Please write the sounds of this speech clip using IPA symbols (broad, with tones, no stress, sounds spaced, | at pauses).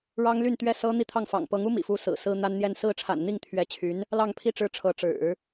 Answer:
ɻ ɑ˥ ŋ l y˥˩ n t̪ ɥ ɛ˥ s ɤ˥ n̪ i˥˧ t̪ʰ ɑ˥˩ ŋ f ɑ̰˨˩ ŋ p ɤ˧˥ ŋ u˥ m ḭ˨˩ f u˧˥ s ɹ̩˨˩ s ɹ̩˥ n̪ a˥ n n̪ j ɛ˥˧ n s ɹ̩˥˩ ʈ͡ʂʰ a̰˨˩ n n̪ i˥˩ ŋ t̪ʰ ɥ ɛ˧˥ t͡ɕʰ y˧˥ n | l ɑ˥˧ ŋ pʰ i˥˧ ʈ͡ʂ ɻ̩˥˩ ʈ͡ʂʰ ɤ˧˥ ʈ͡ʂ ɻ̩˨˩˦